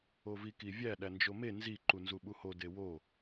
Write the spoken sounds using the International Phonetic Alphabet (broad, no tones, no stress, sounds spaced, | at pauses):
o v i k i vʲ æ ɗ æ n d͡ʒ o m e n z i ǃ u n z u ɓ u h o d e w o